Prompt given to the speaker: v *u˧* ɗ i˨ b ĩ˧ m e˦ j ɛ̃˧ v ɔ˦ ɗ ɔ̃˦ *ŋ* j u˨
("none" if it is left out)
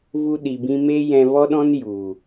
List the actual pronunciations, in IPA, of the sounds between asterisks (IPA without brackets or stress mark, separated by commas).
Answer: u˧, n